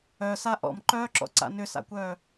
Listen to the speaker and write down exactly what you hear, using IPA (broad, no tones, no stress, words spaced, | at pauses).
œsa ʔɔ̰mǃœːǁɔ̰ǀa̰ nʏsa̰kʷœː